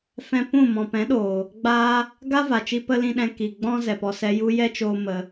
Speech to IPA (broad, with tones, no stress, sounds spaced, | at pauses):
f ɛ̃˧ p ũ˦˨ m ɔ̃˨ p ɛ̃˨˦ ɗ oː˨ | ɡ͡b aː˦ | ɡ a˦ v a˨ t͡ʃ i˧ p ə˧ l ĩ˧ ɗ ɛ̃˧ k i˨ ɡ͡b ɔ̃˦ z ɛ˨ p ɔ˧ s ɛ˦ j u˦ j ɛ˦ t͡ʃ oː˧ m ə˧